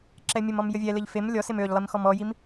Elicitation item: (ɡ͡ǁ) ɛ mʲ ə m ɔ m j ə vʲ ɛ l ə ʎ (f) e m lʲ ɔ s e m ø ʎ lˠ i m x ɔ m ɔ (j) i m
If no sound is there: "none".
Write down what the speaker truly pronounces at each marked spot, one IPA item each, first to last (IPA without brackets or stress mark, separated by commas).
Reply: ǁ, f, j